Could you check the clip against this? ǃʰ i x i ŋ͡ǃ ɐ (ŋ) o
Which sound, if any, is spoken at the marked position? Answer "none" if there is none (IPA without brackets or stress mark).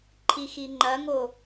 ŋ